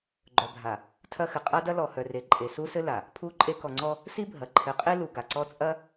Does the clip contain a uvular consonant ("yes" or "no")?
yes